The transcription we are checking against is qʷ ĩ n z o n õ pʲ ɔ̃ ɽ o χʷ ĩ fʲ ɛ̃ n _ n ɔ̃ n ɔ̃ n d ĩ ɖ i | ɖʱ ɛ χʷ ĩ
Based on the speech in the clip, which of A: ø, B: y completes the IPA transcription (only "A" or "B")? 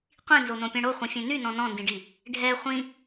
B